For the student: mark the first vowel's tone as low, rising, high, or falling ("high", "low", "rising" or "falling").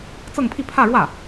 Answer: falling